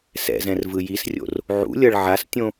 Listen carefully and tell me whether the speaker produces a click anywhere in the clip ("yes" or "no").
no